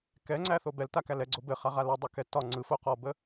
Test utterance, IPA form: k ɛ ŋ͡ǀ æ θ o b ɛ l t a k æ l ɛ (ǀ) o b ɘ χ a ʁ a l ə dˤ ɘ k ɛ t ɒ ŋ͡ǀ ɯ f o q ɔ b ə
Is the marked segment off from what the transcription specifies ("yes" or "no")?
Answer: yes